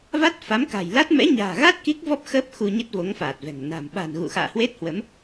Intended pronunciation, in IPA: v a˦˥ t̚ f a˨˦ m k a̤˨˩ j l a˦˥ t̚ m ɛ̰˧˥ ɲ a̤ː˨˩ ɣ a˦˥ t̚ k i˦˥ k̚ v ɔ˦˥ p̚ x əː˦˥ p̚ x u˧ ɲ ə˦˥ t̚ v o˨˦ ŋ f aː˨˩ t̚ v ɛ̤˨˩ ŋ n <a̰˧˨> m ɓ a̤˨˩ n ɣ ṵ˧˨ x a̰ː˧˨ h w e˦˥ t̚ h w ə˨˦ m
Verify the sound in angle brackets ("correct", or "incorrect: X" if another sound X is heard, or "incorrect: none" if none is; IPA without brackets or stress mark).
incorrect: a̤˨˩